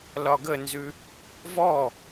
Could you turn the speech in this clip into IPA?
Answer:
lɒɡənzʉ | vɔ

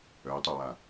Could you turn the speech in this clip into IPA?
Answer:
œy̯tˤowa

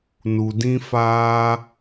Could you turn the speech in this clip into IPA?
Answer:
nu˨dĩ˦ faː˦

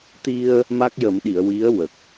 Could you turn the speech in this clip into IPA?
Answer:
t̪i˧ə̯ | ma˦˥k̚jə˨˩˦mɗi˨˩˨ə̯ wi˧˥ə̯wə˨˩k̚

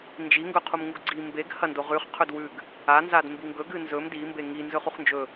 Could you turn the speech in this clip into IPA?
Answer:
nd͡ʒiŋɡɵqʰumŋuɡ ɡ͡ǀi mbeɡ hɐndo ʁʉχ qʰɵdwʉɡ | anzad mbiŋɡɵ ɡɨnzɵm dimbe ŋi nzɵχuχnd͡ʒɵ

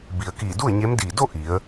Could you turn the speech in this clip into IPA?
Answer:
bi˩ə̯kiː˧˩ du˥˨ə̯ɲe˧˥mdiː˧˩ do˥˨ ʔi˩˧ə̯

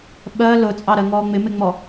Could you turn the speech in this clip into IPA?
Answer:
ɓɜ lʊt͡sʼɑɾɜ ŋɔːŋ͡mɪmɪŋ͡mɔ

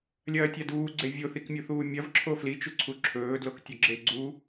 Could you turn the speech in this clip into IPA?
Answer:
lʲɐːtʲaduːɡ͡ǀe vʲoθikmʲuθuː mʲɐvǁʰo flit͡ʃuǀʰu ǁʰɵːdloktʲɵɡ͡ǁe ɡ͡ǀu

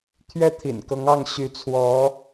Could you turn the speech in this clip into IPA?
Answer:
t̪ʰɥɛ˥t̪ʰḭ˨˩nkɤ˧˥ŋɑ˥˩ŋ ɕy˧˥t͡sʰwɔ˧˥

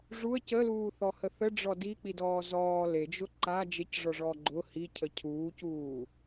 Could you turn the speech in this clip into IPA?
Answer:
ʐuə̯ cəluːθɔhə θəɖ͡ʐɔ dik͡pidɔː zɔː led͡ʒʊ ǃa d͡ʒecʐɔʐɔ ɡ͡ǃʊ hicʰə cʰuːcuː

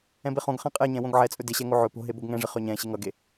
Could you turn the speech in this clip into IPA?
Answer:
ɛ̃beχõɡ χɛ̃qʼɛ ɲɛ̃wõɡʕɛt͡sʼɵ dɪɕɛŋo ʕɵ po̤ɦe boɡŋɛ̃ʐɪ χøɲɛ̃ ɕɪŋʌɡe

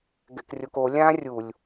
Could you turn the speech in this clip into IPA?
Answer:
ɡɛ̰krʲoko lʲã rʲulʲ

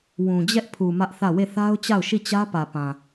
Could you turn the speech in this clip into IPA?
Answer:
wũ˨d͡ʑɛ˦ʔpʰu˨ mä˦ʔθä˦˨ we˦˨θa˦ʊ̯t͡ɕa˦˨ʊ̯ʃi˦˨ t͡ɕä˦pä˨pã˨

